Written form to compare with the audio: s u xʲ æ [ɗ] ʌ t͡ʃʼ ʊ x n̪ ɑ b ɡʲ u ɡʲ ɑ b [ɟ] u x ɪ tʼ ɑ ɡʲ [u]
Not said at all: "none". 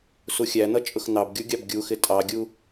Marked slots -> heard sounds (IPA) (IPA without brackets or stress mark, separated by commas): n̪, ɡʲ, u